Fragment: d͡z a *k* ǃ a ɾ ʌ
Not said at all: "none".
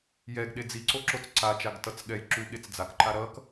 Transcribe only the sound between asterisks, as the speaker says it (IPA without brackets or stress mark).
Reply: k